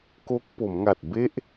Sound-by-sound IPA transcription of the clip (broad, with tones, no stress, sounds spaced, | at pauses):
k o˦˥ k̚ p o˩˦ m ŋ a˨˩ t̚ b e˥˩ ʔ